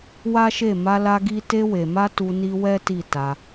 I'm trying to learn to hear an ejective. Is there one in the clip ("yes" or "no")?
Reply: no